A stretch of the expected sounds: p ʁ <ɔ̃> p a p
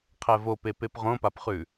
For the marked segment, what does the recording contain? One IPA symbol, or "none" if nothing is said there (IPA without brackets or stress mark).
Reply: õ